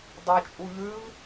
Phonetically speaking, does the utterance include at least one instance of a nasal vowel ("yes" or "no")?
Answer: no